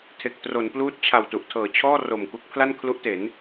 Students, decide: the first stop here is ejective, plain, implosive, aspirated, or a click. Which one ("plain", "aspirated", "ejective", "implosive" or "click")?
aspirated